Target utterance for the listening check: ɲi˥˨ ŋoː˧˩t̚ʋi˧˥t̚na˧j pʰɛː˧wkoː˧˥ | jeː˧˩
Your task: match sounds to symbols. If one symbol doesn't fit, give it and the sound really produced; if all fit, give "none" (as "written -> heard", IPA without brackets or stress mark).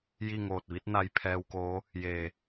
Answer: ɲ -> j